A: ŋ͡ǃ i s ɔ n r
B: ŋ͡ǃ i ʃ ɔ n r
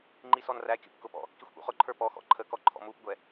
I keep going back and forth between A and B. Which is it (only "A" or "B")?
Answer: A